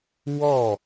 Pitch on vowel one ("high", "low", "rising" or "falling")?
falling